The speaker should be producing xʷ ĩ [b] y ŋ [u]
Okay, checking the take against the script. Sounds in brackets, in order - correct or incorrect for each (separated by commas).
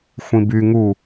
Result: correct, correct